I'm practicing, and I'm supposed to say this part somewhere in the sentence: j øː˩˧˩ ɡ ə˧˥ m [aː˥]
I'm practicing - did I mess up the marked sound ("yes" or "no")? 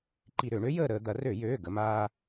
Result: no